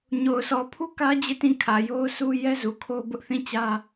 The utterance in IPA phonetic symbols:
ɲ o˨ ʊ̯ sʰ ɔ˨ pʰ u˦ k ä˦ d͡ʑ e˦˨ t ĩ˦˨ kʰ ä˨ j o˦ ʊ̯ sʰ u˦ j ɛ˦ z u˨ kʰ o˦ b ʊ˦ ʔ θ ĩ˦˨ t͡ɕ ä˦

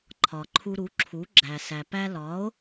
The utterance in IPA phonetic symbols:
ǃʰ ɒ˩ ǃʰ u˧ ɾ u˩˥ ǁʰ u˩˥ ɡ͡ǁ æ˩ s æ˩ p æ˧ l ɒ˩˥ o̯

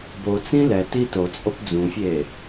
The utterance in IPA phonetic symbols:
b o t͡s ĩ l ɛ t i t o t͡sʼ o p d͡z ũ fʲ e

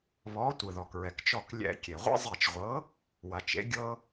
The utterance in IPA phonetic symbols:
β ɔ˨˥ tʷ ɯ˩ ð ɔ˩ k ɹ ɛ˩ k t͡ʃ ɔ˧˩ k lʲ ɛ̰˧˩˧ kʲ e˩ ʁʷ ḛ˦ zˤ e˧˩ t͡ʃ ʁʷ ɤ˨˥ | w a˩ t͡ʃ ḛ˨˥ ɡʲ ɤ˦

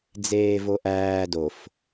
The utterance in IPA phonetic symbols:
d͡z eː v o ʔ æː d o f

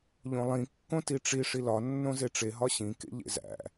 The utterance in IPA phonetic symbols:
ʎ õ lˠ ĩ kː õ t i ʈ͡ʂ i ʂ i l ɒ nː õ z e ʈ͡ʂ e ɦ ɒ ɕ ĩ k ḛ ʎ ḛ z æ̰

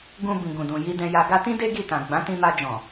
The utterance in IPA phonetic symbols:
ɡ ũ˧ b ĩ˨ ɡ ũ˨ d ũ˨ j i˧ d ɛ̃˧ j a˧ ɡ a˧ t ĩ˦ d e˦ ɡ i˦˨ t ã˨ ɡ͡b ã˨˦ t ĩ˧ m a˧ d͡ʒ ɔ̃˨

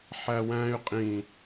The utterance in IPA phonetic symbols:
ħ æ w æ̃ y̯ qʼ ĩ

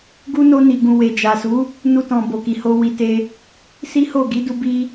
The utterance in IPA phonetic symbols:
ɡ u˦ n o˧ n i˨ ɡ ũ˨ w e˨ d͡ʒ a˨ s u˨˦ | n u˧ t ɔ̃˨ b o˨ k i˨ h o˧ w i˨ t e˧ | s i˦ h o˦˨ ɡ i˨˦ d u˦ b i˦

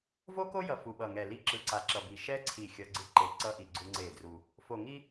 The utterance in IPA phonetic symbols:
v o˦ k o˦ j ʌ˨ f u˨ ɓ ʌ˨ ŋ ɛ˨ l i˦ ǁ ɯ˨ ǀ a˨ ǁ ʌ˨ b i˨ ʃ ɛ˦ ǀʰ i˦˨ xʲ ʌ˦ ɡ͡ǀ ɯ˦ ǃ e˨ ǀ ʌ˦ ʔ i˨ ɡ͡ǀ u˦ ŋ͡ǀ e˦˨ d r u˦ | f o˨ ŋ i˦

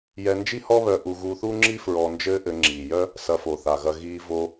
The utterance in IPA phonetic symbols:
j ɛ˧ n d͡ʒ i˥ h ɔ˥ β œ˧ ʔ u˧ ɣ uː˧ θ uː˥ ŋ͡ǁ i˥ f ɹ ɔ˧ n d͡ʒ ɘː˥ ʔ ɘ˧ ŋ͡ǁ iː˩ j œ˥ | s ɐ˧ f o˩ θ a˩ ɣ ɐ˧ ɣ iː˧ v o˧

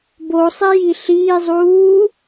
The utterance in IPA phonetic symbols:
b o sˤ e j i ɬ iː zˤ uː

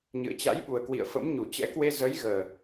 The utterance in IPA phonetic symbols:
ɲ ɨ̰˧˨ ə̯ t͡ɕ a̰˧˥ j ɓ u˨˩ ə̯ k w ḭ˧˨ ə̯ f ə̰˧˥ m ɲ u˧˩ t͡ɕ ɛ̰˧˥ k w e˧ z ə˨˦ j ɣ əː˨˩

